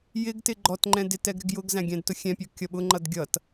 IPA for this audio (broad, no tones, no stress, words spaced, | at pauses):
jɪɡtɪ ɡ͡ǃɔtŋ͡ǃɛ̃ dɪtɛɡ ɾɪɡjʊɡzæ̃ ɡʲæ̃dtʊxʲɛ̃pʲɔ kʲʌɓʊŋ͡ǃʌd ɡʲʌt